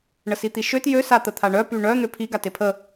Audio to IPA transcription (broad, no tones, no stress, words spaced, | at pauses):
ɳəsit̪iʃøt jø sat̪ət̪ʰaɳœ pyɳœ n̪øpʰi ɡatepʰə